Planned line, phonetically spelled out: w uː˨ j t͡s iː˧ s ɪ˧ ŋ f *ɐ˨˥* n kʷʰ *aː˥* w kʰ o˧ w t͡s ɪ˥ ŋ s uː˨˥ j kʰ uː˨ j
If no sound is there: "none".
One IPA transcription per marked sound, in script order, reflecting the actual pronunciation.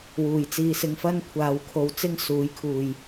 ɐ˥, aː˨˧

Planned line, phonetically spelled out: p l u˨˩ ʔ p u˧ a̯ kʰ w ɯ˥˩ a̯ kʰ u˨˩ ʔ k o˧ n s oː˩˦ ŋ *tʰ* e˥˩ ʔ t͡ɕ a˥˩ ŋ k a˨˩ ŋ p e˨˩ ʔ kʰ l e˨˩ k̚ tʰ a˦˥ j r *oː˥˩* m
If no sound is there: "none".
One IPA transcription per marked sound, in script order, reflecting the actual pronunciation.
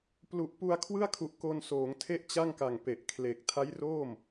tʰ, oː˥˩

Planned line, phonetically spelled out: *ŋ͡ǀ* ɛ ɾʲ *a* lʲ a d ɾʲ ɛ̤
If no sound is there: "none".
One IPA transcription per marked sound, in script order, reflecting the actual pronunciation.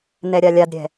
n, a

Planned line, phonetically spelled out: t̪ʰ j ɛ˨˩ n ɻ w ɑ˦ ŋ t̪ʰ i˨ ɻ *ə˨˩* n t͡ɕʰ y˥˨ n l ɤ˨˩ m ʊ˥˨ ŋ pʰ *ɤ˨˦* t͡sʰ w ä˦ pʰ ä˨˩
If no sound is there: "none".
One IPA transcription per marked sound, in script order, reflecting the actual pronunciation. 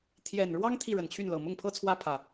ə˨˩, ɤ˦

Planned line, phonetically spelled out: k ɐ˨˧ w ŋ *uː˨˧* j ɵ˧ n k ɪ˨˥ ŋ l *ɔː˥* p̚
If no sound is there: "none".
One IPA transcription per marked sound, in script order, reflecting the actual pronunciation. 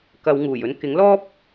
uː˨˩, ɔː˥

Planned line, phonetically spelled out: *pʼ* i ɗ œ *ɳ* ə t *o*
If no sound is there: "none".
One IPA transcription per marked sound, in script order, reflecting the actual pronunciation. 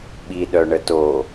ɓ, ɳ, o

